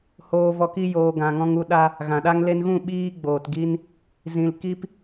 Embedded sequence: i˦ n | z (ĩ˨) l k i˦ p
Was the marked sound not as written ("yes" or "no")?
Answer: no